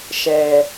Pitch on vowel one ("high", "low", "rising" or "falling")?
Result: low